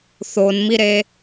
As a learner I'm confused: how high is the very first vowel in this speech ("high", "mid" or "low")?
mid